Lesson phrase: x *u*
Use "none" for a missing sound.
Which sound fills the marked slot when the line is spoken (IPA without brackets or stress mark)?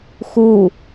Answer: u